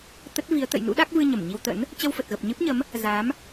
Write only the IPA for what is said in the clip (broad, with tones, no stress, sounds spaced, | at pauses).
t̪ ə˦˥ t̚ v i˨˦ ə̯ t̪ ə̰˧˨ j n ṵ˧˥ ɗ a˦˥ k̚ v ɨ˧ ɲ ə˧˩ m ɲ i˧ w t̪ ə̰˧˥ n | t͡ɕ ə˧ w f ə˨˩ t̚ ɣ ə˨˩ p̚ ɲ ɨ˦˥ p̚ ɲ ə˨˦ m | z a˨˦ m